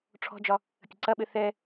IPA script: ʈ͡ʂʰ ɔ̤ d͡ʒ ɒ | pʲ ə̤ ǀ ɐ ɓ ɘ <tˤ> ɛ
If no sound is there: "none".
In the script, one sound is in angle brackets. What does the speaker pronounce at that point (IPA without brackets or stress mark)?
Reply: θ